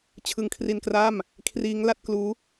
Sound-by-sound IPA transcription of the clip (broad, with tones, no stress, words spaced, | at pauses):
t͡ɕʰɯ˧ŋkʰri˧nkraː˥˩m | kʰriː˦˥ŋla˦˥t̚kluː˦˥